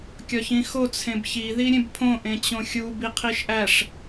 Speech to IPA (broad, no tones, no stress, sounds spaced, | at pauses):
kʲ ɒ ç ĩ x o t͡sʰ ẽ b ç i ð i ɾʲ ẽ b pʰ õ ʔ ẽ t͡ɕ õ xʲ u b i qʰ i ʃ ʔ æ ʂ